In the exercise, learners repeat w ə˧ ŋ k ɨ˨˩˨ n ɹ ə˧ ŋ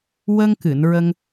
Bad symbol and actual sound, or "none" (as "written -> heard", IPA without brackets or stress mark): none